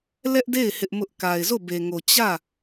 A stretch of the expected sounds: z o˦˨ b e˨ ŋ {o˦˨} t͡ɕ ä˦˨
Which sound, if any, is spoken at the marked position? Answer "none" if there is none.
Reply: o˨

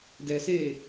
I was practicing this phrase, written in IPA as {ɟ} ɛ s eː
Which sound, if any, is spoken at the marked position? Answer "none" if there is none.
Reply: d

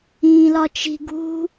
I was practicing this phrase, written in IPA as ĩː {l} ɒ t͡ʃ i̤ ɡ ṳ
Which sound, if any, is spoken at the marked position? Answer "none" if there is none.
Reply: l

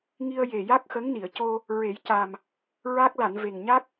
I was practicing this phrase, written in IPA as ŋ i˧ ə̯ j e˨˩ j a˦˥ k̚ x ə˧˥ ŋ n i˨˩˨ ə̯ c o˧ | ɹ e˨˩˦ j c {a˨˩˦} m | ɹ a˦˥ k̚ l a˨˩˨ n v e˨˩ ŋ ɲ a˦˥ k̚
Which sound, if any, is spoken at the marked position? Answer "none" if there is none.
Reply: a˨˩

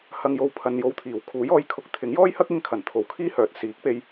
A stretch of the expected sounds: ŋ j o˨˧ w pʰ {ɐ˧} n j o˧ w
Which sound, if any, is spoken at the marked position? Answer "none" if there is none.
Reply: ɐ˨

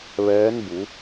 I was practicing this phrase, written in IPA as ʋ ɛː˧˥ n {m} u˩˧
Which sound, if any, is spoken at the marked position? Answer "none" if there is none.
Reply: b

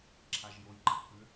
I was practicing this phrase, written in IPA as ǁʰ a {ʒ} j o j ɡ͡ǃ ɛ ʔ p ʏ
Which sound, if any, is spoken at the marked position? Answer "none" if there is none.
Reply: ʒ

